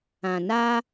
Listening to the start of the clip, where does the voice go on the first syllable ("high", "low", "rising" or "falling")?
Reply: low